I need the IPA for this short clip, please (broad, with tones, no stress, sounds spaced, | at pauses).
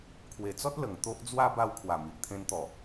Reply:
kʰ w e˨˩ t͡s ɔ˦ t̚ l ə˨˩ ŋ t̪ o˦ ʔ d͡z w a˦ b a˧ w kʰ w a˨˩ m i˨ ʔ t̪ʰ ẽ˧ n t̪ ɔ˨˩